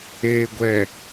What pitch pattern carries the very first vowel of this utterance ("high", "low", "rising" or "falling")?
low